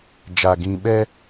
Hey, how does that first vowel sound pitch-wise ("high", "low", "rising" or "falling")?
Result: low